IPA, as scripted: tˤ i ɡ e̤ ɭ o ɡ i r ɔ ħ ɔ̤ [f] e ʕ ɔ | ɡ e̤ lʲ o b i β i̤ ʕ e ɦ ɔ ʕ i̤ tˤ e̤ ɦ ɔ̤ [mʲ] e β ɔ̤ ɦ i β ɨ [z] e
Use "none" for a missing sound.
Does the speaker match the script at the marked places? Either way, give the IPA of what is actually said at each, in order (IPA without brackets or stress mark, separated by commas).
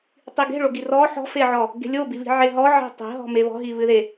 f, m, ð